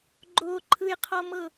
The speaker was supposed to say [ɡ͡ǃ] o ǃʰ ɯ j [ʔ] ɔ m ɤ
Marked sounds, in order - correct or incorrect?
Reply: correct, incorrect: qʰ

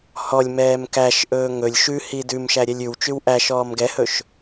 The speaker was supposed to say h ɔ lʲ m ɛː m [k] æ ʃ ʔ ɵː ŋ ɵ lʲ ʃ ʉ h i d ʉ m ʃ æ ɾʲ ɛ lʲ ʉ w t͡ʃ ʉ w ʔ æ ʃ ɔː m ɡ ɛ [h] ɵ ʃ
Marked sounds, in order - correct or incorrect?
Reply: correct, correct

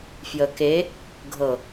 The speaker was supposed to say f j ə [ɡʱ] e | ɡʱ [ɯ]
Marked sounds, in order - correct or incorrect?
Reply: incorrect: k, incorrect: ɤ

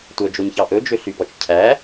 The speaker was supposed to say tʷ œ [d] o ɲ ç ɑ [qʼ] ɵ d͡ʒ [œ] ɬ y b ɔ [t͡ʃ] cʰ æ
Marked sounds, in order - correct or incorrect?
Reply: incorrect: d͡ʒ, incorrect: ʔ, incorrect: ø, correct

